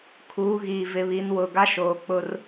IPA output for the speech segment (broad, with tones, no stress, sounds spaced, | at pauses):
kʰ uː˨˦ ɣ iː˨ v ɪ˨˦ β i˨˦ n w ʊ˨ ɡ a˦ ʃ oː˨ k͡p ʊ˦ r